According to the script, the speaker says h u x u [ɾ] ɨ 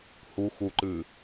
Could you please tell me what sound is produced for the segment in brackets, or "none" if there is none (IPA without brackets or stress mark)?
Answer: ǃ